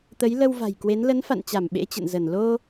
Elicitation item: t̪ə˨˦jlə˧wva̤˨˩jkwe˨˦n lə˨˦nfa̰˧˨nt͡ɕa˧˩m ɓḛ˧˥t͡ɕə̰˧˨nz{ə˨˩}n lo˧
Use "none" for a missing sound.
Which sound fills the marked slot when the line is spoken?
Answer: ə˧˩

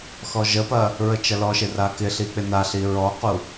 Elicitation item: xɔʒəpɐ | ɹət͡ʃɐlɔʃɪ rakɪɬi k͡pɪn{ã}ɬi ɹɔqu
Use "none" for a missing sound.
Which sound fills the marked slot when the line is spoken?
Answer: a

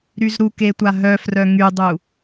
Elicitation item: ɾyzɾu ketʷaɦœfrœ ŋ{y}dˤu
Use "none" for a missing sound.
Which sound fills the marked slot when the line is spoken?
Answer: y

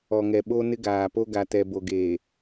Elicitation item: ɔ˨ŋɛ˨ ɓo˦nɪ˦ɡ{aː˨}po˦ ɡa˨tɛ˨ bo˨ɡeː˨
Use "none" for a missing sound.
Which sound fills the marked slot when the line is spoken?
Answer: aː˨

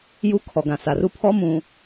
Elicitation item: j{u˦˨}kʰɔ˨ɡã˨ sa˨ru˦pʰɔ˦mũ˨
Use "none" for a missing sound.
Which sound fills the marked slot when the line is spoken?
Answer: u˦˨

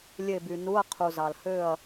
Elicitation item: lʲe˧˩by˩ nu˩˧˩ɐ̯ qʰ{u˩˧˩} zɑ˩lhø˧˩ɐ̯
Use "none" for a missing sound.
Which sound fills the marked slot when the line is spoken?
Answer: u˩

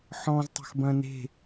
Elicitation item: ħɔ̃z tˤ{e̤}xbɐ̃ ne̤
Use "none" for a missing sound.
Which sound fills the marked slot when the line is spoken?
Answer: e̤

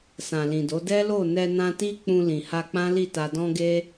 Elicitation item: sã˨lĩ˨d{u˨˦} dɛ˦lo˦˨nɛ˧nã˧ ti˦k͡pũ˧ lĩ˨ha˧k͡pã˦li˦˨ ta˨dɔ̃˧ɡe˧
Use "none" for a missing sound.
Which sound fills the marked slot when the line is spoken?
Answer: o˨˦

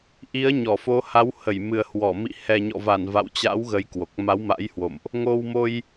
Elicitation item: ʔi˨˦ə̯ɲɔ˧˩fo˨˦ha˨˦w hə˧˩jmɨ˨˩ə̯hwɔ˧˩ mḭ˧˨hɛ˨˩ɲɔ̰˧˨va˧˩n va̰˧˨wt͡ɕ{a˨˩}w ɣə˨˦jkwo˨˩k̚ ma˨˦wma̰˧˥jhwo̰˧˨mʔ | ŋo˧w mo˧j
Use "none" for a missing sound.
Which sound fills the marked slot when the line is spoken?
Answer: a̰˧˥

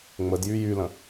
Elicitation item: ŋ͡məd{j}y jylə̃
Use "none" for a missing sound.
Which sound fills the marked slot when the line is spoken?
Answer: j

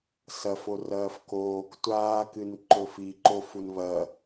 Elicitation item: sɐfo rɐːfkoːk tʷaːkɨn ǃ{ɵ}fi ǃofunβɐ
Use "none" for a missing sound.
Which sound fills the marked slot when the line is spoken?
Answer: ɵ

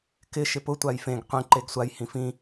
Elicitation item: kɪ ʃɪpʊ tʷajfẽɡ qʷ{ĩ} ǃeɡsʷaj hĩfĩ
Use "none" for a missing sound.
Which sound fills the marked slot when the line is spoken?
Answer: ĩ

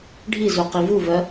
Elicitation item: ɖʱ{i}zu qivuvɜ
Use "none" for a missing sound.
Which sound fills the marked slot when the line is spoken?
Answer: i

